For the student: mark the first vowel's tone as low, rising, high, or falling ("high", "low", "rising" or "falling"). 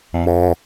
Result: high